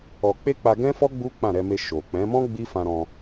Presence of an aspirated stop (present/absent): absent